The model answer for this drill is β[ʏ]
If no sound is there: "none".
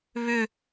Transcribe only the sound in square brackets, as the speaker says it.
ʏ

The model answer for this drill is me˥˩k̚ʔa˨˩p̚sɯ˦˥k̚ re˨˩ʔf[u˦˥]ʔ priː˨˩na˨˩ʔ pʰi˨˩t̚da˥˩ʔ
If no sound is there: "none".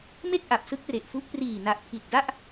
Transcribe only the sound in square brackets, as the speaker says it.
u˦˥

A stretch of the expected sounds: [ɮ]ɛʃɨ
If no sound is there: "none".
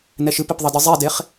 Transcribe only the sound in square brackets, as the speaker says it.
n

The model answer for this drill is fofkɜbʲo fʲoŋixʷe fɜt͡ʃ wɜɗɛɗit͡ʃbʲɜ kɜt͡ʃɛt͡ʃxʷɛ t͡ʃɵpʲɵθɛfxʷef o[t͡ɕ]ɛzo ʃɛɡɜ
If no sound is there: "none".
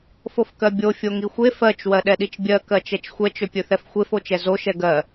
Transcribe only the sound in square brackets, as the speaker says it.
t͡ʃ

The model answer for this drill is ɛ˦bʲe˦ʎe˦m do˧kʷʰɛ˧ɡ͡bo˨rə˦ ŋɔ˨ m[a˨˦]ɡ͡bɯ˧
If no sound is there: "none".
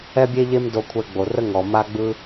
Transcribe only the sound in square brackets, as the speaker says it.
a˧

